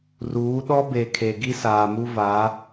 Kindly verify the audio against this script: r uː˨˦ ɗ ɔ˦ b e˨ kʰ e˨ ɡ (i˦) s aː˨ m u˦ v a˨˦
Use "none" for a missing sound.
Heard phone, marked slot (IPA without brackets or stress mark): i˦